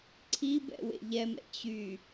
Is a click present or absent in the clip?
present